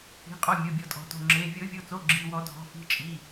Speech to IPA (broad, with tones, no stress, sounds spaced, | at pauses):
i̤˩˧˩ qʼ ɔ˩˧˩ mʲ o˩˧˩ bʲ ɔ˨˩˦ tʼ ɔ̤˨˩˦ t o̤˩˧˩ ŋ͡ǁ e˩˧˩ vʲ o˨˩˦ vʲ o˩˧˩ t͡s o˩˧˩ ɡ͡ǁ i˩˧˩ w ɔ˨˩˦ dʱ ɔ̤˩˧˩ f i̤˩˧˩ t͡ʃʼ i˩˧˩